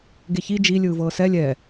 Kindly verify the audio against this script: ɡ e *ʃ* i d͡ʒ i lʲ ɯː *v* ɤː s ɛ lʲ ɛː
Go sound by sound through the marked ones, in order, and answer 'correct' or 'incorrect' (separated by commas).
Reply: incorrect, correct